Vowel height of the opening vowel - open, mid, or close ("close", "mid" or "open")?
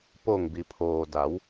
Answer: mid